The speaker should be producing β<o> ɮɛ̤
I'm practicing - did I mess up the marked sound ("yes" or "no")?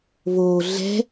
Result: no